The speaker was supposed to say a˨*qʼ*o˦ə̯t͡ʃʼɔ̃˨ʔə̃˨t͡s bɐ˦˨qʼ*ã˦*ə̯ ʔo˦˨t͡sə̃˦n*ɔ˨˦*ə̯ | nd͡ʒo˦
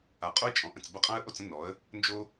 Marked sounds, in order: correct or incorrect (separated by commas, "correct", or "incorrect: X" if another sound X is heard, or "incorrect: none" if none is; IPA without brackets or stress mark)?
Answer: correct, correct, correct